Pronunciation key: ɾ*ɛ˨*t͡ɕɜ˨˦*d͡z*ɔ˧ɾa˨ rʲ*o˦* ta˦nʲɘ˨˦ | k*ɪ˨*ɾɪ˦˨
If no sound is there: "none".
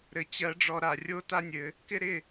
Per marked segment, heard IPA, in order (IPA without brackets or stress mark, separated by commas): ɘ˨, ɖ͡ʐ, o˦, ɪ˦